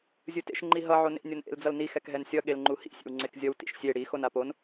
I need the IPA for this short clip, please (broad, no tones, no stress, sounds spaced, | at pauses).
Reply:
zʲ ɯ t ḛ ʃ ŋ͡ǃ i ɦ ʌ ʕ o n ḛ nʲ o n ʔ ḛ l d͡z ʌ l n i x ɛ k ɦ ɛ n sʲ ʌ ɠ e l ŋ͡ǃ u h ḭ sʲ ḛ w ŋ͡ǀ e k zʲ ʌ w t ḭ ʃ sʲ e ɽ i x o n a p o n